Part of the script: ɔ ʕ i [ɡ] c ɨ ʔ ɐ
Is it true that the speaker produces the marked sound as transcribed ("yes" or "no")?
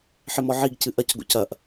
yes